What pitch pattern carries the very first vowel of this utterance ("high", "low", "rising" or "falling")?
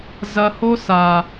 low